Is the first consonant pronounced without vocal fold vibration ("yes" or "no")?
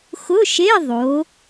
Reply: yes